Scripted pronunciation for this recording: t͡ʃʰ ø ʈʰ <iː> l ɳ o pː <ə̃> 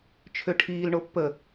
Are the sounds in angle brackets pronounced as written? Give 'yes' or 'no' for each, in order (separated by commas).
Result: yes, no